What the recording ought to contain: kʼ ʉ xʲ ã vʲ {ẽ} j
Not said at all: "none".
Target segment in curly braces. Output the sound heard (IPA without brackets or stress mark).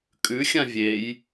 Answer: e